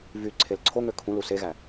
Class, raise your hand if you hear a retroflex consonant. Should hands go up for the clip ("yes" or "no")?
no